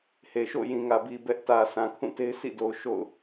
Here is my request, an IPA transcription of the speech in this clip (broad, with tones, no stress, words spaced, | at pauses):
he˨ ʃo̰˦˨jĩ˨ŋä˨bi˨ bɛ˦ʔ tä˨ sã˨kʰũ˦˨te˦ɪ̯ sʰḭ˦˨do˨ʊ̯ ʃo̰˦˨ʊ̯